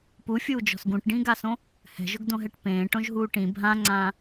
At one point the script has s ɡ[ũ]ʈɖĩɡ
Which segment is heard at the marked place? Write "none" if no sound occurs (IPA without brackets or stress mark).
ũ